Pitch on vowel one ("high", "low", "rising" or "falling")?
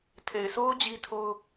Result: low